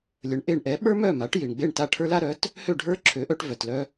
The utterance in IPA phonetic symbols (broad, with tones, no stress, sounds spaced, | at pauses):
lʲ ə˩˥ ɳ ʔ e˧ ɳ ʔ ɛ˩˥ ɓ ə˞˥ m œ˥˩ m a˩˥ ʈ j i˩ ɳ ɡ͡b e˥˩ ɳ t a˥˩ ʈʰ ə˞˥ l a˥ ɾ œ˩˥ t | h ø˥˩ ɖʱ ə˞˥ ǁʰ ø˩˥ ʔ œ˧ ʈ v œ˩ t l œ˧